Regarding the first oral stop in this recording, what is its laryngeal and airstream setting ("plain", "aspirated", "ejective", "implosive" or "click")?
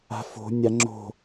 click